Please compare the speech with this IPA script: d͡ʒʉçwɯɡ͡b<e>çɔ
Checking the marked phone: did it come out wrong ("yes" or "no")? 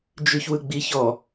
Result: yes